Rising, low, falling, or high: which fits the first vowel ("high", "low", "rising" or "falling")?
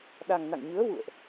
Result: low